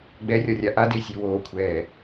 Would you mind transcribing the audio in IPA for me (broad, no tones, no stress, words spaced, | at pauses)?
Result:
ɡ͡bɛrʲɒrʲa ʔadesʲe woːkʷʰɛː